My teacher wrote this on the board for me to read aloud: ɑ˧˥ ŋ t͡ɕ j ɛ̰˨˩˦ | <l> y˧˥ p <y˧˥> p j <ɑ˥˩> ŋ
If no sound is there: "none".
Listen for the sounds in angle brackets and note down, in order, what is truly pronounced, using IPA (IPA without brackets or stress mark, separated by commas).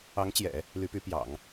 l, y˧˥, ɑ̰˨˩˦